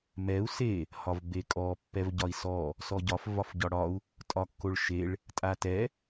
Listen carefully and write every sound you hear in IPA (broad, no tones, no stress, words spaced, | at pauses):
mɛu̯ se | hɒvbekʼɔ pːɛvɟɒi̯sɔ | sɔɟɒf vɒfɟɒɽɒu̯ | tʼɒkːoɭʃeɭ | tʼatɛ